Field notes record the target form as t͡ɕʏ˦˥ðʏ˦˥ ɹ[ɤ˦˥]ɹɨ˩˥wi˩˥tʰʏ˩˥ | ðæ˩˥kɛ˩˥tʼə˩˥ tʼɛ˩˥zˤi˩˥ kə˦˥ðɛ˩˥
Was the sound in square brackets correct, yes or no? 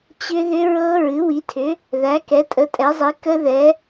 yes